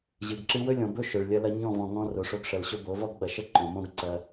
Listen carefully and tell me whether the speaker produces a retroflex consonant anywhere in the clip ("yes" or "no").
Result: yes